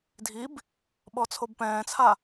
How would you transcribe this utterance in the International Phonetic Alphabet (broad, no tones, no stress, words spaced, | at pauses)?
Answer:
dʱib | ɓɔt͡sʰobpɛ̃ːt͡sʰa